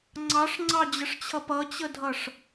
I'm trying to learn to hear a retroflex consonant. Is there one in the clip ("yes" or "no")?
yes